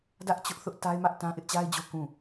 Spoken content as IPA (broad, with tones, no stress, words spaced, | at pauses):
dä˦ʔt͡ɕʊ˦ʔθʊ˦ʔ ta˦ɪ̯mä˦ʔ tã˦ʔɪ˦ʔt͡ɕa˦ɪ̯d͡ʑo˦ kũ˦˨